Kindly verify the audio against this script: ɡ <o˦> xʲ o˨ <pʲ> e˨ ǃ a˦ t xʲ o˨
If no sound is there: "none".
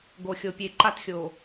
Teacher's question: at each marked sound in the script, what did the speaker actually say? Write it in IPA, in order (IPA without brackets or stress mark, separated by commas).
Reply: o˨, pʲ